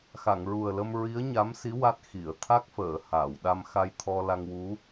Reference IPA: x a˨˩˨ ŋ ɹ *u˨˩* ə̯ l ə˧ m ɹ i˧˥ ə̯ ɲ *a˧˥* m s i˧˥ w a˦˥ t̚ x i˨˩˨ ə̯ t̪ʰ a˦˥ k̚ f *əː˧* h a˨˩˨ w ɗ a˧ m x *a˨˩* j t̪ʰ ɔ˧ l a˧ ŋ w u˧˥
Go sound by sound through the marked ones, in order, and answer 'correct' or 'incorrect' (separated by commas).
correct, correct, incorrect, incorrect